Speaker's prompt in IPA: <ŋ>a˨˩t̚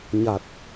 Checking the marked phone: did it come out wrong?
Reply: yes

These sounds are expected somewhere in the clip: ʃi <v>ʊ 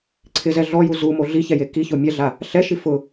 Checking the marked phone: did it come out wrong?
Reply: yes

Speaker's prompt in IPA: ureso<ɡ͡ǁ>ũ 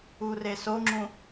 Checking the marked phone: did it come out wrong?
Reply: yes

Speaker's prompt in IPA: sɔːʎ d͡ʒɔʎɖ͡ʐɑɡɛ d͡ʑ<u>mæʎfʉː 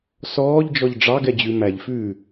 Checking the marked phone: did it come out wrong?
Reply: yes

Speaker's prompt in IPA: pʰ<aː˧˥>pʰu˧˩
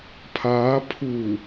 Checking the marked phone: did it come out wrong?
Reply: no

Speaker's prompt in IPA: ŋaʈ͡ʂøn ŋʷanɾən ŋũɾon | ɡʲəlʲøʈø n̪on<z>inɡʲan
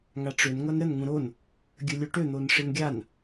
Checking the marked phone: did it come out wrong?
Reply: yes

